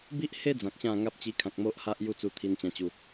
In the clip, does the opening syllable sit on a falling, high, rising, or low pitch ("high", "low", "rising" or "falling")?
high